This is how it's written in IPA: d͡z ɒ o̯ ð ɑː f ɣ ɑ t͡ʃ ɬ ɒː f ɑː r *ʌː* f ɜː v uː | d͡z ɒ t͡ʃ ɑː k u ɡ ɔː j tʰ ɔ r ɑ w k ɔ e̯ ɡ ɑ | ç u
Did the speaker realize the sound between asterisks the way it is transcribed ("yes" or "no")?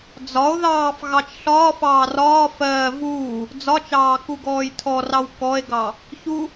no